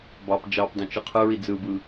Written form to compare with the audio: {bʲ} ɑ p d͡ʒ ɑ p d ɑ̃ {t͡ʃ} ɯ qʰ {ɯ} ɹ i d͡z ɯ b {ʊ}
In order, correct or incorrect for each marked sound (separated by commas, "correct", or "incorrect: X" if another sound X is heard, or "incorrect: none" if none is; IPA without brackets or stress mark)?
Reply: incorrect: b, correct, correct, incorrect: ɯ